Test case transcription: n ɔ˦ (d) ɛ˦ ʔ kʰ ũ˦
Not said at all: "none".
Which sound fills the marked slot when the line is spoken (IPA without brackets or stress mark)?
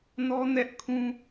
n